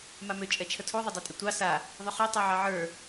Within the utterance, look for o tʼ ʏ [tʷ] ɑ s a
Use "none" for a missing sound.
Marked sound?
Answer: tʷ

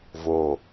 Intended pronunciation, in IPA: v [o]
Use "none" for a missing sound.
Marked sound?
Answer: o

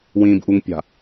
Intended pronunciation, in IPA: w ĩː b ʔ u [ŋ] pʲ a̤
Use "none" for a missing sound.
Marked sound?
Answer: ŋ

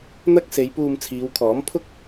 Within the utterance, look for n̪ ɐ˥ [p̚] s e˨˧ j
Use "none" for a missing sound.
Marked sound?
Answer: k̚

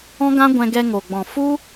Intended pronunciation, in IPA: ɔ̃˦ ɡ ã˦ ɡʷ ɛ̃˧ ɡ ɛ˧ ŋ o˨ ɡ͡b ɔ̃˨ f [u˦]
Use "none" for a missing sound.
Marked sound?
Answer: u˦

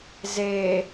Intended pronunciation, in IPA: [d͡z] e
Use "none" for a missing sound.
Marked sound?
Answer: z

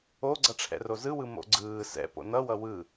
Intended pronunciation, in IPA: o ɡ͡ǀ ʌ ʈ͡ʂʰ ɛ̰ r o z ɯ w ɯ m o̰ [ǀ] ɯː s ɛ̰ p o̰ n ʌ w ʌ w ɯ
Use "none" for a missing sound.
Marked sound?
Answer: ɡ͡ǀ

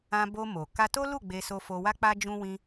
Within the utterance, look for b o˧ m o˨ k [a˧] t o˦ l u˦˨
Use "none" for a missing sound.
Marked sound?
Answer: a˧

